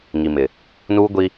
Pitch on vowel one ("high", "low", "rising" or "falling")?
low